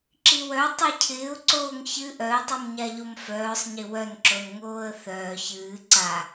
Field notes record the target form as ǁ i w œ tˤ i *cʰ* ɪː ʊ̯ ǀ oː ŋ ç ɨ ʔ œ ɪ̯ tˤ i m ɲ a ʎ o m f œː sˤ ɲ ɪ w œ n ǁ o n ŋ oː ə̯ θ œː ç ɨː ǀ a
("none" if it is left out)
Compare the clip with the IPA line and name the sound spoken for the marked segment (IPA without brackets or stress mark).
cʰ